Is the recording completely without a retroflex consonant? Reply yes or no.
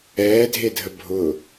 yes